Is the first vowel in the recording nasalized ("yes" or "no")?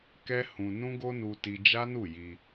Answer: no